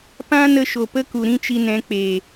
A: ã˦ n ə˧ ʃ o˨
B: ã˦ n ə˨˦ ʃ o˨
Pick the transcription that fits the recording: A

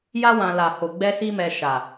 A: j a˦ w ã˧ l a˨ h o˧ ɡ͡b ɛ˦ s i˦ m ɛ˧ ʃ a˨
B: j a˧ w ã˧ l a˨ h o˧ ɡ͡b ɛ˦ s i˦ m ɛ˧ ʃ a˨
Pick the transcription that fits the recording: A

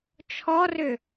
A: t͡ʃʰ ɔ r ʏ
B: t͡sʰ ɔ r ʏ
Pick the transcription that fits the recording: A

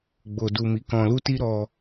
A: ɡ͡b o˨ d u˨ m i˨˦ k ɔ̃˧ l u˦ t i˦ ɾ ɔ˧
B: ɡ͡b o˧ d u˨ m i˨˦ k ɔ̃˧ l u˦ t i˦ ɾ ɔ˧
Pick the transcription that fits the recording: A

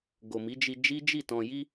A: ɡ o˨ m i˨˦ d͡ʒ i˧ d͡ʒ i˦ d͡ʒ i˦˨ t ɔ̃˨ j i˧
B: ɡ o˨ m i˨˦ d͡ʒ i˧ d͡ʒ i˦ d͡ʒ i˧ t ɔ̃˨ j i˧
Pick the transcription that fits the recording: A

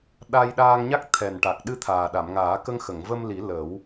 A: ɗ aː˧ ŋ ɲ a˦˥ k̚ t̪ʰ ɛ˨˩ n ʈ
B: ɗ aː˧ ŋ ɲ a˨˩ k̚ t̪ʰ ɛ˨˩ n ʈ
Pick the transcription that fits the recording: A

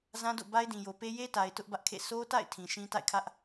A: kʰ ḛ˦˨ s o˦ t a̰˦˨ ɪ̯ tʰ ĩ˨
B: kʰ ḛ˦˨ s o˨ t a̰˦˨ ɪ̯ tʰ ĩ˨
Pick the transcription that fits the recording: A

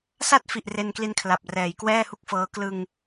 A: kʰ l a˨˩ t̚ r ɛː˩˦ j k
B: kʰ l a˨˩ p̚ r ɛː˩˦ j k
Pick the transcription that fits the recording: B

